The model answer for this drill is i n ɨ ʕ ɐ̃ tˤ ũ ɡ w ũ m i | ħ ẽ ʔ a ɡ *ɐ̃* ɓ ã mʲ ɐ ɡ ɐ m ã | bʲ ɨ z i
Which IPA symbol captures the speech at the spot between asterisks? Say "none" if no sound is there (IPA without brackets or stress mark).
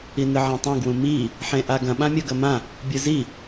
ɐ̃